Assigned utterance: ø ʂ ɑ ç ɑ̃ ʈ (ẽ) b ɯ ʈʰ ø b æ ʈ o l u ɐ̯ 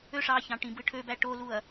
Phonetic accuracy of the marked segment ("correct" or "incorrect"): incorrect